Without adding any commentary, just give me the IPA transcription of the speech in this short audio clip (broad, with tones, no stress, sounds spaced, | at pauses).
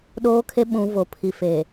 ɗ oː˦ kʰ e˦ ɓ ũ˨˦ v o˨ pʰ i˨ f e˨